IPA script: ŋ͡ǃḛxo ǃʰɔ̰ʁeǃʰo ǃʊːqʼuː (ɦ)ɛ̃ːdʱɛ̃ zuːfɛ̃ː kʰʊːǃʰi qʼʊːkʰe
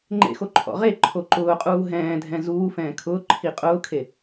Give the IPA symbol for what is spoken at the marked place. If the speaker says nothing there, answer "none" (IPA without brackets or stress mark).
ɦ